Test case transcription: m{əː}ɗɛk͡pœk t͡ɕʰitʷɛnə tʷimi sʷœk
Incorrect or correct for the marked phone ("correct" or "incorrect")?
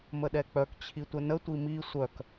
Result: incorrect